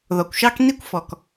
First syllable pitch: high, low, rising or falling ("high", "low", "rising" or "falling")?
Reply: low